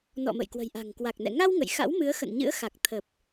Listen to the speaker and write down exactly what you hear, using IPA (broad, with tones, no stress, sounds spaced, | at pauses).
n ɔ̰˧˨ m ə̰˧˨ j k w ə̤˨˩ j ʔ a̤˨˩ ŋ k w a˨˩ k̚ n ɛ̰˧˨ ŋ a˧ w ŋ ə̰˧˨ j x a̰˧˥ w m ɨ˨˦ ə̯ x ə̰˧˨ n ɲ ɨ̰˧˥ ə̯ x a˨˩ k̚ t̪ʰ ə˨˩ p̚